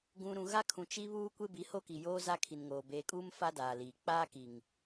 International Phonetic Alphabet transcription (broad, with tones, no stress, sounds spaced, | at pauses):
ɡ ũ˨ ɾ ũ˨ ɣ a˦ kʰ ũ˨ t͡ʃ i˦ β uː˦ kʷ e˦ b i˨˦ h o˦ k i˨ j oː˦ z a˦ kʰ i˨ n ŋ oː˨ b eː˨ kʼ uː˦ m f a˦ d aː˨ l iː˨ k͡p aː˦ k i˨ ŋ